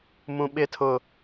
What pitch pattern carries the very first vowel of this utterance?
low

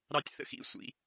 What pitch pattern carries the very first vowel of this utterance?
falling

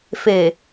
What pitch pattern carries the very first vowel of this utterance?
low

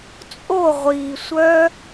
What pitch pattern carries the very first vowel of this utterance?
falling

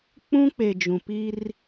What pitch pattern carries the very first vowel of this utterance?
high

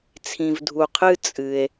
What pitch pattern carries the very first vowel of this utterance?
low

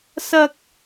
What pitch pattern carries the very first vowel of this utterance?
high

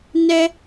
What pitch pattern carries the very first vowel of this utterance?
high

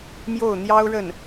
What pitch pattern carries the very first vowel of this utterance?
falling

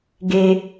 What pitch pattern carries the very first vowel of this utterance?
low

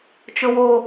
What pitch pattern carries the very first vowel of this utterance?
low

